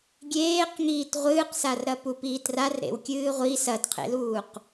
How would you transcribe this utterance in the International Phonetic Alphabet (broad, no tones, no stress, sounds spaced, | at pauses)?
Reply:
ɡʲ eː q ŋ iː t ʁʷ ɨː q s a r ɾ ɐ p u p iː t r a r ɾ ḛ w kʲ ɨː ʁʷ i s ɐ t qʰ ḛ l uː q